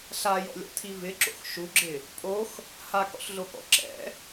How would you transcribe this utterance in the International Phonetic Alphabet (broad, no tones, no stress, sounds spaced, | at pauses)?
ɬ a j ɔ̰ lʲ ɔ̰ tʰ i v ɪ ǁ o̰ x ʃ u ɡ͡ǁ ɪ | pʼ o x | h a k ɔ̰ ɬ ɮ o k ɔ̰ ǁ ɛ̰